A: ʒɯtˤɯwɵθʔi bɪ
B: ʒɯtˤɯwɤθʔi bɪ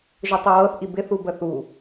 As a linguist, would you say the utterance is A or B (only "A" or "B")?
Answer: B